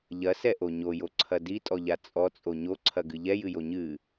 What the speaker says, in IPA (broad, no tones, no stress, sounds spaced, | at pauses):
ʎ ɐ s ɛ ʔ o ɲ o j o ǀʰ ɐ d i tʼ ɔ ʎ a t͡sʼ ɔ t͡sʼ o ɲ o ǀʰ ɐ ɡ ɨ ʎ ɛ j ɨ j o ɲ ɨ